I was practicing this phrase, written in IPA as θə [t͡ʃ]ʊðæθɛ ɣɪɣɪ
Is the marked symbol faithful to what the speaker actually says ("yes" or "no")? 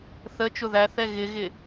yes